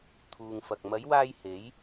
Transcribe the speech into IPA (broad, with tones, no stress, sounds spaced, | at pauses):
t̪ʰ uː˨ ŋ f ɐ˨ k̚ m ɐ˨˧ j w aː˧ j h e˨˧ j